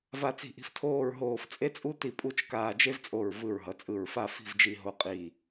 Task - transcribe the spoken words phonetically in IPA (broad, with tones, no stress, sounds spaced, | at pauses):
v a˧ t͡s i̤˧˩ ʔ i̤˧ f tʰ oː˥˧ ɹ ɦ oː˧˩ f t͡sʼ e˥ t͡sʼ u˥ t i˧˩ pʼ u˥ t͡ʃ k aː˧ d͡ʒ e˥ v t͡sʼ o˧˩ ɹ v ɯ˧˩ ɹ ɦ ʌ˩˧ t͡sʼ ɯ˧˩ ɹ f a˥˧ f i̤˥˧ v d͡ʒ i˧ ɦ o˧ qʼ i˧˩